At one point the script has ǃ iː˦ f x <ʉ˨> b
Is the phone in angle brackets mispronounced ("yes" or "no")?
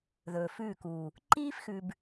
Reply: no